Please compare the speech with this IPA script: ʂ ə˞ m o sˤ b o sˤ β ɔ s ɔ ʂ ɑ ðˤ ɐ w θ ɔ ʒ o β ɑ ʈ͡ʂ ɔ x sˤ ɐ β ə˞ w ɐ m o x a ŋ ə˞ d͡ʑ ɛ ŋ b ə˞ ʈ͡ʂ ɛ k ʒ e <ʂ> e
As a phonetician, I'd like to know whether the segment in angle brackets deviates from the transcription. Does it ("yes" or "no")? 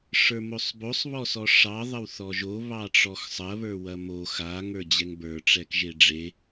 yes